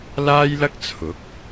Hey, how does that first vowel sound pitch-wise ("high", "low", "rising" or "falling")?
high